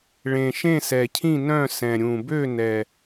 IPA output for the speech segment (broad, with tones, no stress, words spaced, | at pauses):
ɭẽ˨˩ʃẽ˥˨sɛ˨˩cʰĩ˥˨ nœ̃˥˨sɛ̃˨˩ɾʲũ˨˩ bø˥˨nɛ˨˩